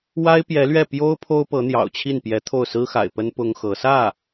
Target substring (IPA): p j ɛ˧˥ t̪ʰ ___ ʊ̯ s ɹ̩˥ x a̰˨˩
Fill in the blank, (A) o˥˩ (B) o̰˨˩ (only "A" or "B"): A